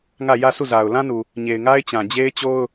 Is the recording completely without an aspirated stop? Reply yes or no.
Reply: yes